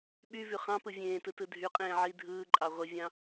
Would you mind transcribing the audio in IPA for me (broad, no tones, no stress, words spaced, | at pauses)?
ɓyvy χɑ̃pɯ vʲẽːtɯ tɯdʱyqʼẽː ʕi dʱɯːǃʼɑ ʁʷivʲɑ̃